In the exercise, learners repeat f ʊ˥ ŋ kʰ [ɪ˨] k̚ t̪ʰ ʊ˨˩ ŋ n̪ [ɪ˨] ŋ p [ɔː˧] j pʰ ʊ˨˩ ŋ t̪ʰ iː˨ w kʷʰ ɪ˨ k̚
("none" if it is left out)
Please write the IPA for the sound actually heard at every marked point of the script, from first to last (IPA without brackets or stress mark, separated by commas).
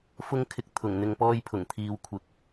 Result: ɪ˧, ɪ˨, ɔː˧